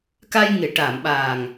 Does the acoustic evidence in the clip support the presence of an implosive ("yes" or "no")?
yes